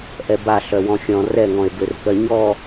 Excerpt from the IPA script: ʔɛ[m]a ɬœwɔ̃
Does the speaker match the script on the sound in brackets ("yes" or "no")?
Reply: no